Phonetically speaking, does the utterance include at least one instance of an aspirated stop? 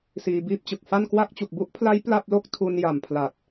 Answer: yes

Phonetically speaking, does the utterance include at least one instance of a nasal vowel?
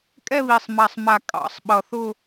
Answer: no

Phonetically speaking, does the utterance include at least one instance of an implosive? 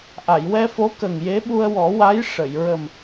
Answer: yes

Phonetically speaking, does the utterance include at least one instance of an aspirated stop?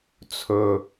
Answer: yes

